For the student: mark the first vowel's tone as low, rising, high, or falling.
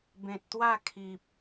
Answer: low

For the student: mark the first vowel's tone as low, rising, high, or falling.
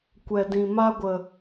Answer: low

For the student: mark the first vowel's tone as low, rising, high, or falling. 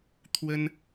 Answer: high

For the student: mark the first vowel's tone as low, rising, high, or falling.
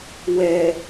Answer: low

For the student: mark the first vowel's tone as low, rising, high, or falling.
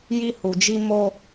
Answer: high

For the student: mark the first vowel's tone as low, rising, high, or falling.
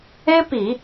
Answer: high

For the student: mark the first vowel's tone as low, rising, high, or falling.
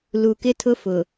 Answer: low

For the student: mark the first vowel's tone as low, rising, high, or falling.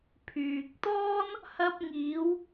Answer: low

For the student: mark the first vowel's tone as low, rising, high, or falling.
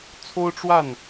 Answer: high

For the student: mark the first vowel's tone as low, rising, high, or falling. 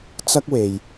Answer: high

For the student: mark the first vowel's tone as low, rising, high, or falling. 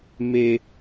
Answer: high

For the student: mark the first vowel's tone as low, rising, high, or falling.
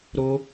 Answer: high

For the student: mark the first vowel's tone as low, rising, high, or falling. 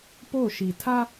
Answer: falling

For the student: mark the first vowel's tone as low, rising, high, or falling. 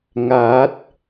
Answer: rising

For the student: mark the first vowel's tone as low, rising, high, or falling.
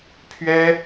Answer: high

